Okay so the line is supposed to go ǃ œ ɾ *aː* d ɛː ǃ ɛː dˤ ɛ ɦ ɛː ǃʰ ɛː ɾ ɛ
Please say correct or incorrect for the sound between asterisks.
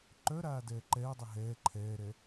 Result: correct